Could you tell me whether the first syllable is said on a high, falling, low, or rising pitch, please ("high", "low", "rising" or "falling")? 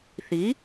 rising